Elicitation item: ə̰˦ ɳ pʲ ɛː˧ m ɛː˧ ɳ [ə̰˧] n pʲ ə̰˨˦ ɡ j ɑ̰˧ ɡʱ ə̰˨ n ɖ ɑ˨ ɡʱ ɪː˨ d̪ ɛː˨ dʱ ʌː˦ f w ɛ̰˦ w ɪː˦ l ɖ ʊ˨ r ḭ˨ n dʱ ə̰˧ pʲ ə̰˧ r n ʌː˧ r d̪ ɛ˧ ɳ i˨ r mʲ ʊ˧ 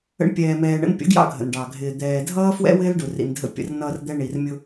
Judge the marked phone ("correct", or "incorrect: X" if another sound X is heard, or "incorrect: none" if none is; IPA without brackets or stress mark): correct